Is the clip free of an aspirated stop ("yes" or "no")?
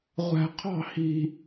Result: no